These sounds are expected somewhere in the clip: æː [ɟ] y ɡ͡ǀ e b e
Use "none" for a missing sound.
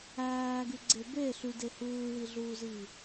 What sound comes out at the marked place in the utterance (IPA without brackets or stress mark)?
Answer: ɡ